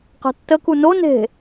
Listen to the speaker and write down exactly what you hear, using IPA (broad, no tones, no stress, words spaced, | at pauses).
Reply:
qɛ̤tːəku no ne̤